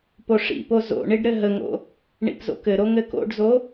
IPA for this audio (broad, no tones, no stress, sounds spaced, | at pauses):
p o ʂ ḭ p o z o̰ ɳ i ɖ ɾ ɘ ɦ ə ŋ o̰ | ɳ ḭ p z o̰ k ɘ ɾ o ŋ ɘ k o̰ ɖ z o